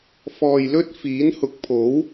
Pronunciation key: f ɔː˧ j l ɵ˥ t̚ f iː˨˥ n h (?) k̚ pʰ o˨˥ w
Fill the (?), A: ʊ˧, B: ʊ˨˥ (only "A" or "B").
B